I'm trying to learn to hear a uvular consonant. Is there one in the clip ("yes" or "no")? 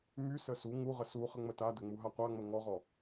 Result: yes